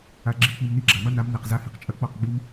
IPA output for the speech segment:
a˧ ɡ͡ǁ i˧ k͡p i˨ m n i˧ ɡ͡ǁ a˨ m ɐ˦ n a˨˦ m n ɛ˨ q z a˧ h i˨ q t͡ʃʼ ɐ˧ k͡p ɔ˦˨ q ɡ͡b i˦ m

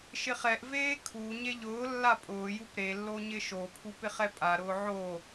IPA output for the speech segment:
ʃ ɪ χ ɛ ʔ v eː kʰ u ɲ e ʎ ʊː lː a pʼ ʊː j u p ɾ e lː o ɲ ɪ ʃ o pʰ u p ɪ χ ɛ pʼ a ɾ ʊː ʕ o

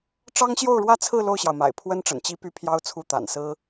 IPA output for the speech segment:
ʈ͡ʂ ɑ˥ ŋ ɕ j o˥˧ ʊ̯ ɻ w ä˥˧ t͡sʰ ɹ̩˥˧ l o˥˩ ʊ̯ ɕ j ɑ˩ ʊ̯ m a̰˨˩ ɪ̯ pʰ w ə˥ n ʈ͡ʂ ə̰˨˩ n t͡ɕ i˥ p y˥˩ pʰ j ɑ˥ ʊ̯ t͡sʰ u˥˩ t̪ a̰˨˩ n s ɹ̩˥

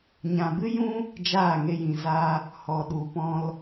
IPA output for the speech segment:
ɲ ã˨ b ɨ˦ j ũ˦ | d͡ʒ aː˦˨ ŋ e˧ j ĩ˨ z a˧ | h ɔ˨ ɗ u˨ p ɔ̃˧ l

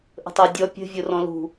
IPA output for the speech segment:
ʔ ə̤ tˤ a dʲ ɔ pʲ ə̤ vʲ o r ɔ̃ l ṳ

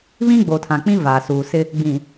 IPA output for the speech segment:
β ĩ˦ ɡ͡b o˨ tʰ ã˨ k͡p ĩ˦ v aː˨ s uː˨ s ɪ˦ | ɡ͡b ĩ˨

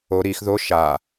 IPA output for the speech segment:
o ɾ i x ð o ʃ a

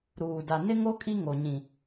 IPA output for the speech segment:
ɾ uː˨ d a˨ n ɪ˦ ŋ o˦ kʼ i˦ ŋ o˨ ɲ ĩ˨

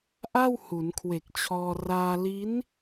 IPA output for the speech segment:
ʔ a˥˩ w h u˩˦ n kʰ w e˨˩ k̚ t͡ɕʰ ɔː˧ r aː˧ l i˦˥ n

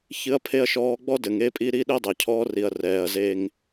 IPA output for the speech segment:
ç ɨ˦ ɐ̯ pʰ e˦ ɐ̯ ʃ ɔː˦ ɡ͡b ɔ˦ d ɘ˨ ŋ e˦ pʼ i˦ ɾ i˦ ɗ e˦ dˤ ɛ˨ cʰ ɔː˦ r i˨ ɐ̯ r ɛː˨ ɐ̯ z e˦ ŋ

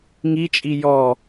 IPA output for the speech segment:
ŋ i t͡ʃʼ i j ɔ

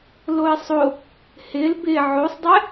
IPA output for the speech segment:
l o e̯ sˤ o | h ɪ l b ɪ ʕ o sˤ dˤ ɛ

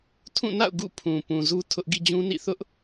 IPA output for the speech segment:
tʰ ũ˦˨ n a̰˦˨ ʊ̯ ɡ ṵ˦˨ pʰ ũ˨ p ũ˨ z u˦ tʰ ʊ˦ ʔ ɡ ḭ˦˨ d͡ʑ ũ˦ n ḭ˦˨ θ ʊ˦ ʔ

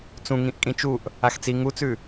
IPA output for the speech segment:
t͡s ũ ŋ ĩ ʔ kʼ ĩ t͡ʃ u ʔ | a x t͡s i ŋ u t͡s ʉ

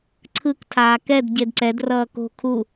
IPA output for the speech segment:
ǀʰ ɯ k tʰ aː k ɛ d ɟ e d ǀ ɛ d r ʌː k o̤ kʰ u

